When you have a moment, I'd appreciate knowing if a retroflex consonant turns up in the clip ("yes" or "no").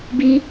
no